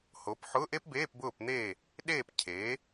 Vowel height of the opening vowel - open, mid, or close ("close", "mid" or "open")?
mid